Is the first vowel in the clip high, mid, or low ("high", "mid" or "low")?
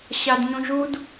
low